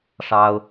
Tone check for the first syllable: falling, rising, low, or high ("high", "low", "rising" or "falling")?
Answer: high